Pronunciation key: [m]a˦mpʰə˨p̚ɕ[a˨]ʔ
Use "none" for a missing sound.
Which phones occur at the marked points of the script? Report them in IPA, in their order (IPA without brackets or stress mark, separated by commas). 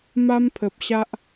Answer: m, a˦